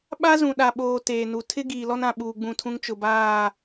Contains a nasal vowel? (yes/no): yes